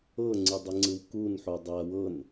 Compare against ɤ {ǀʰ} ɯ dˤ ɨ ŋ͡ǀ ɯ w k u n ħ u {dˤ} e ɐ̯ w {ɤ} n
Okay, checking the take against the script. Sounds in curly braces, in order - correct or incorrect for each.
incorrect: ŋ͡ǀ, correct, correct

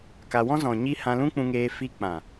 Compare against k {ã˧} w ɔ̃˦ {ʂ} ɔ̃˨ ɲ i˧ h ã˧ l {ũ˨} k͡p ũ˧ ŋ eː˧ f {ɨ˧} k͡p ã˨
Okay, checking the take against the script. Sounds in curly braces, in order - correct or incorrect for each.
incorrect: a˧, incorrect: z, incorrect: ũ˦, incorrect: i˧

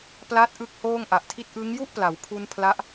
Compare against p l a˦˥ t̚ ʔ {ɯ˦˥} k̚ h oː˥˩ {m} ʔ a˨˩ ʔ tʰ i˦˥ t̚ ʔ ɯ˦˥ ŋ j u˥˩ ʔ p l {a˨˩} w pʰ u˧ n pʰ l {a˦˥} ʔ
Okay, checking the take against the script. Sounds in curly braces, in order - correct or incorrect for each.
correct, incorrect: ŋ, incorrect: a˩˦, correct

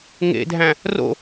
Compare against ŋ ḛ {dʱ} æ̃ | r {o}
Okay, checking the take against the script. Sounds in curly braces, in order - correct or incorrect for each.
correct, incorrect: o̰

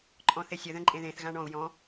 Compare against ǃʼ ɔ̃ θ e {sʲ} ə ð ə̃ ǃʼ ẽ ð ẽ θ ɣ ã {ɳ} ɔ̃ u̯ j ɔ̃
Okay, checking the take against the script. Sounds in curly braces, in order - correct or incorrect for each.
correct, correct

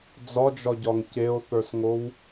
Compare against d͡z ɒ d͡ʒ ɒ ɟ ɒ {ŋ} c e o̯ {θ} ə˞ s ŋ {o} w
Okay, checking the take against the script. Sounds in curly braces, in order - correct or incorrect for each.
correct, correct, correct

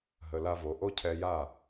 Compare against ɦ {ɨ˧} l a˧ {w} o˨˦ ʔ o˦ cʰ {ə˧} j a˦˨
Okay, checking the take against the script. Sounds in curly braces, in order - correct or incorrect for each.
incorrect: ə˧, incorrect: v, incorrect: ɛ˧

